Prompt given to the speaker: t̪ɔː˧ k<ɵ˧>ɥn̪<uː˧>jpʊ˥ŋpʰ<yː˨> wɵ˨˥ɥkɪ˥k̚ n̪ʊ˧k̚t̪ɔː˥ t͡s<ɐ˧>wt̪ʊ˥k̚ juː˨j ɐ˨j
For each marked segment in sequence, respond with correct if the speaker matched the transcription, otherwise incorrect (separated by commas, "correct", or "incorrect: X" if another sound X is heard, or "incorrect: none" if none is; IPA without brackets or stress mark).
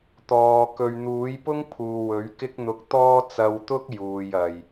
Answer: incorrect: ɵ˨, incorrect: uː˨˥, incorrect: uː˨, correct